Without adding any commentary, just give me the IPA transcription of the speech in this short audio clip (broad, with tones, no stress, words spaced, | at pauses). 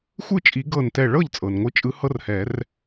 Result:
xʷɯ˥˩t͡ʃʼi˨˩˦ ɡɤ˧˩ntɛ˧˩ɭɤ˥˩ʎt͡sʼɤ˩n ŋʷɯ˧˩t͡ʃʼɯ˨˦ hɤ˦rhɛ˨˩˦r